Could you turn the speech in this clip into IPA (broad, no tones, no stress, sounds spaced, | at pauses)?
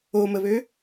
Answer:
o m ə β ø